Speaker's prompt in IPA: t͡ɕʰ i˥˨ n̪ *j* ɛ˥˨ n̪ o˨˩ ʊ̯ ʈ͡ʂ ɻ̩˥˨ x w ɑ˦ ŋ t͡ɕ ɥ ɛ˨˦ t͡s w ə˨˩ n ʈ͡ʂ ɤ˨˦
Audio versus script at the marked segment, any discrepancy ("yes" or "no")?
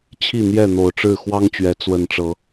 no